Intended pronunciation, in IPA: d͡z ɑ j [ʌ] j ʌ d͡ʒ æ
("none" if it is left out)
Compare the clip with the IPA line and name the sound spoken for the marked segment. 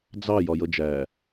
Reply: ɒ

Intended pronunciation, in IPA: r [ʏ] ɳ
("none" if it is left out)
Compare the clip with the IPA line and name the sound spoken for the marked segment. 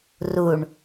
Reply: u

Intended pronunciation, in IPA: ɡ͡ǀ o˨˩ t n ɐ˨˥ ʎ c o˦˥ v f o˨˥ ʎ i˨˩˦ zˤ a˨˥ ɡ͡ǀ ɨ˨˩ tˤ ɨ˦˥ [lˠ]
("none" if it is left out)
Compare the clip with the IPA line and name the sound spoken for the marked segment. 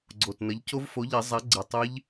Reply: ʎ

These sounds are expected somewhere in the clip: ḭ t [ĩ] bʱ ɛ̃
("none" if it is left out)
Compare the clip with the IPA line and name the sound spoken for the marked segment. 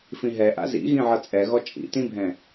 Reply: ĩ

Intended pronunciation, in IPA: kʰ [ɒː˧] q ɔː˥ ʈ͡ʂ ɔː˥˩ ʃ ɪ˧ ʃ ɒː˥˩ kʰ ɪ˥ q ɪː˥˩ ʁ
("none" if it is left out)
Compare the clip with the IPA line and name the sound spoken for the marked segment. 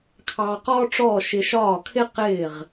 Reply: ɑː˧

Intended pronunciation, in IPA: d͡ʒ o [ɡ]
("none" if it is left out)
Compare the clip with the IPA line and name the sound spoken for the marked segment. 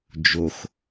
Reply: x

